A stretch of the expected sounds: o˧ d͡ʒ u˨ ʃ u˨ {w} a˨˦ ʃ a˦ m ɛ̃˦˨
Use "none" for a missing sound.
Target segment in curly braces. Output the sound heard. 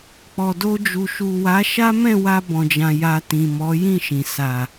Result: w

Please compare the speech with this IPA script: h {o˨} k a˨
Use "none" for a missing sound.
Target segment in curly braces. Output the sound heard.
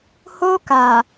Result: o˦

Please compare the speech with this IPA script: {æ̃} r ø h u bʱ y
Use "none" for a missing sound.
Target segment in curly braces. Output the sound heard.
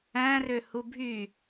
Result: æ̃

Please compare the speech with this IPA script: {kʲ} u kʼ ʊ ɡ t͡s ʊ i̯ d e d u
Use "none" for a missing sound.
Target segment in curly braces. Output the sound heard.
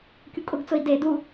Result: kʲ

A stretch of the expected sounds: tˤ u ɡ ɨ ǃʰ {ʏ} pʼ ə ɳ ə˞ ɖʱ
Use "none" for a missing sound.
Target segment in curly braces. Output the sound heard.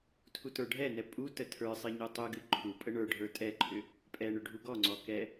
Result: u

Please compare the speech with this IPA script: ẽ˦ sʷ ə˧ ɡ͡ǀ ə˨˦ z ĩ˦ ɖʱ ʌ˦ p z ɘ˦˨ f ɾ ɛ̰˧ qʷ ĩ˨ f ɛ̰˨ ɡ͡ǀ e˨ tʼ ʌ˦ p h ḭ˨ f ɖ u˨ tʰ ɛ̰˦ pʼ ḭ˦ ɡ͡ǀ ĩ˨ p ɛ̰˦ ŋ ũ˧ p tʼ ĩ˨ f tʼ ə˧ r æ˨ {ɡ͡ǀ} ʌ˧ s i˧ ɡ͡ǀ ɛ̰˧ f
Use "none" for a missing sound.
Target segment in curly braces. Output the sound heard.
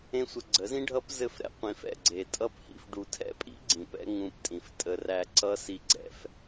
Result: ǀ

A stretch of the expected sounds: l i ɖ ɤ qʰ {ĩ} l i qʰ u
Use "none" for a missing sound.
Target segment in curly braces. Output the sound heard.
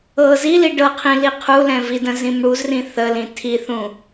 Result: ĩ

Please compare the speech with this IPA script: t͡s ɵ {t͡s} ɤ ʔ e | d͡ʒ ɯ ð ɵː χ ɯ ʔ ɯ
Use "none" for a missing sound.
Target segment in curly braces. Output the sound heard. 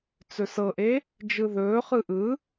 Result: s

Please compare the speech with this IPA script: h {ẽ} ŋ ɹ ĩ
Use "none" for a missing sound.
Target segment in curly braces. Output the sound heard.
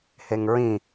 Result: e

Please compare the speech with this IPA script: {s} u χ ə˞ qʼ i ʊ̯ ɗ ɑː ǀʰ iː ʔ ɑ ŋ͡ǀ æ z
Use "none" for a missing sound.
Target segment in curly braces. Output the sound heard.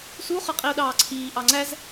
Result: s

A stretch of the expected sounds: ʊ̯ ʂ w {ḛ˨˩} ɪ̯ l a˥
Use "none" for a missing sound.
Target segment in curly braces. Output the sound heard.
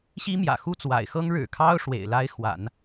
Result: ḛ˨˩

